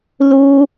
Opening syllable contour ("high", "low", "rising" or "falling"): high